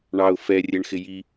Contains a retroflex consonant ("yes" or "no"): yes